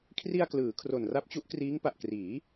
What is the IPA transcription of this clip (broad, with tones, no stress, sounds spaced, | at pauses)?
kʰ r i˧ a̯ k l ɯː˩˦ kʰ r o˨˩ n r a˦˥ p̚ t͡ɕ u˦˥ ʔ k r iː˦˥ ŋ p a˨˩ ʔ k r iː˩˦